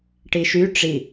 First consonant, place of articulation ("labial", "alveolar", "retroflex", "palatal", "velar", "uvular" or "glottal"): retroflex